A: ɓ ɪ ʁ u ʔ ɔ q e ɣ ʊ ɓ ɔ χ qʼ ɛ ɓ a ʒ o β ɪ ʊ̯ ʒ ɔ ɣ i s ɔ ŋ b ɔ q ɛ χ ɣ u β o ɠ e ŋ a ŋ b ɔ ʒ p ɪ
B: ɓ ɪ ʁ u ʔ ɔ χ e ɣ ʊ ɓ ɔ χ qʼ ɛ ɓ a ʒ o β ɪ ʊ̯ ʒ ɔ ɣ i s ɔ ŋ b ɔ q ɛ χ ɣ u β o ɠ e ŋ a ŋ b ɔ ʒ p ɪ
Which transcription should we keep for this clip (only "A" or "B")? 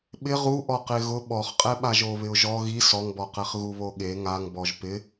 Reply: A